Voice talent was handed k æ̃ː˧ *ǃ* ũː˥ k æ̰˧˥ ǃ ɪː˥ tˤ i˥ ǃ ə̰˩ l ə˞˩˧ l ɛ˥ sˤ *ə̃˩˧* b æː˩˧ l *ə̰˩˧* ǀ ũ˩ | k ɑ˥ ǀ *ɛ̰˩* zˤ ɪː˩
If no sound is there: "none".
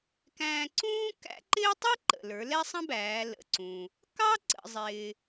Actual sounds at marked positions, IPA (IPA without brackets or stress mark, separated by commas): ǀ, ə̃˥, ə̰˩˧, ə̰˩